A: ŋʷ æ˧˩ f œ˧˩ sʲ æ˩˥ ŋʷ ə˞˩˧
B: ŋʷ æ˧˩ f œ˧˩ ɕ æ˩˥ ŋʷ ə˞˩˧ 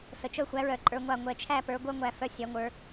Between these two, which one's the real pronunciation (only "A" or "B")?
A